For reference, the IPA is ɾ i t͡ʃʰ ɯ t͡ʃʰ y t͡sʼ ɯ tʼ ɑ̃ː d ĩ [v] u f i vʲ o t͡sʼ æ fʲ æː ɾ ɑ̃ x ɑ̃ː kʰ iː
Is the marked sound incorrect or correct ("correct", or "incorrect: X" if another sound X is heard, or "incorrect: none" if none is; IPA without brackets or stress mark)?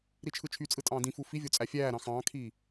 incorrect: f